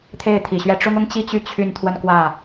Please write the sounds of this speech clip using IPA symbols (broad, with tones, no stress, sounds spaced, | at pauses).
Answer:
t̪ʰ e˥˩ ɪ̯ t̪ʰ i˨˩ ɕ ɥ ɛ˥˩ ʈ͡ʂ ʊ˥ ŋ ʊ˥ ŋ t͡ɕ i˥˧ t͡ɕ y˥˧ t͡ɕʰ y˥˧ n t̪ʰ w ə˥˧ n k w ä˥˩